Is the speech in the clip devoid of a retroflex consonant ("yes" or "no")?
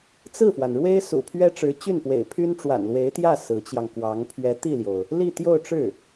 no